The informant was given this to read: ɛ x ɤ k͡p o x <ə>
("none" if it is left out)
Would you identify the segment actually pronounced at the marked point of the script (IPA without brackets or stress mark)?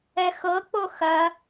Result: ɐ